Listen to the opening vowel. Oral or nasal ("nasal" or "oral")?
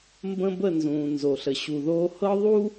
nasal